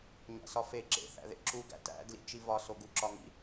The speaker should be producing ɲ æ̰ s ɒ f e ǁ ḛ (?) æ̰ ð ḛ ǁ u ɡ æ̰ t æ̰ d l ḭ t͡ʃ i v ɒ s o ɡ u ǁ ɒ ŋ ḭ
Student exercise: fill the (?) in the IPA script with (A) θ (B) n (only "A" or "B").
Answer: A